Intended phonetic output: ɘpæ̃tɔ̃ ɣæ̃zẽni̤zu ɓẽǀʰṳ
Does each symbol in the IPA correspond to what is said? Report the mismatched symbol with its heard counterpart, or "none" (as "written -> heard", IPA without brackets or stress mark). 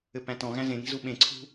none